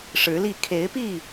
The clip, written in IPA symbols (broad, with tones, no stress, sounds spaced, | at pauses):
ʂ ɻ̩˨˦ l i˥˨ kʰ e˨˦ ɪ̯ p i˥˨